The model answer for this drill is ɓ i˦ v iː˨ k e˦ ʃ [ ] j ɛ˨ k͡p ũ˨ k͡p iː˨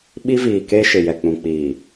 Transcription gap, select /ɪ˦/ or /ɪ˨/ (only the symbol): ɪ˨